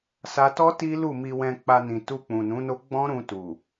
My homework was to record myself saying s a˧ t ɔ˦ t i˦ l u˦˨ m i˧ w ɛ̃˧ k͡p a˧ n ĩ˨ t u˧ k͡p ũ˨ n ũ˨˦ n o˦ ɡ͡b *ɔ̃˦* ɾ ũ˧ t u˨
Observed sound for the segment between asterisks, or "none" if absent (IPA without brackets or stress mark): ɔ̃˦